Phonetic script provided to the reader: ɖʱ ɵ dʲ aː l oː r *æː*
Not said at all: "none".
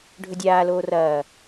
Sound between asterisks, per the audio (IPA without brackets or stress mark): ɐː